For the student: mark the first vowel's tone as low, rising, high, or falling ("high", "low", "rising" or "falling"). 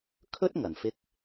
high